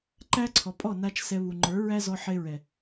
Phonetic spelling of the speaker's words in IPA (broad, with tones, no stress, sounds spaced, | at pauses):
ǃ æ˦ ǀʰ ɔ˨ pʼ ɔ˦˨ n a˦ t͡ʃ s ɛ˧ β u˨ ŋ͡ǃ ə˞˨˦ ɹ æ˦ z ɔ˧ ħ e˧ ɹ ɛ˨